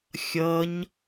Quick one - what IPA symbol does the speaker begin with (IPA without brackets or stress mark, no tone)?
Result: xʲ